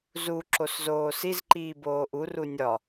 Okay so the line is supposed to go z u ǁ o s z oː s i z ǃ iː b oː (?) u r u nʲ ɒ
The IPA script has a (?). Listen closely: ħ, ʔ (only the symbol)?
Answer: ʔ